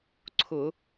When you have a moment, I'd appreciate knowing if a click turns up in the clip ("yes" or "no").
yes